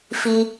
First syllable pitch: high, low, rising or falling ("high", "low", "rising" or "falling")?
low